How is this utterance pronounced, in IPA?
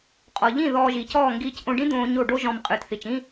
qʼɔ˨ʎĩ˦˨ ðɔː˧ʒiː˨cɔː˦˨ ŋɡiː˧cʔõ˧ɖĩ˦d̪õː˧ ɲo˦˨ɖo˦ʒɔ̃˧m qʼɨː˨tθi˨t͡ʃĩ˦

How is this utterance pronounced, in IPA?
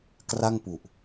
kra˥˩ŋpu˨˩ʔ

